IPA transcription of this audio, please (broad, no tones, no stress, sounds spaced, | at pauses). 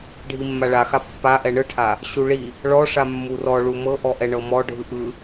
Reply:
ɖʱ i mː a ɭ a x a pː a ʔ ɛ ɳ ɯ ʈʰ a | ɕ u ɭ i | ɭ ɔ ʂ a mː u r ɔ ɭ u m ɤ ʔ ɔ ʔ ɛ ɳ ɤ m ɔ ɖʱ ɯ ʔ ɯ